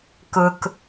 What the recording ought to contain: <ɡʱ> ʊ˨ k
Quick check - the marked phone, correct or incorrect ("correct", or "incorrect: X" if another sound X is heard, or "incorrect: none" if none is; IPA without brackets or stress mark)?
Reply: incorrect: k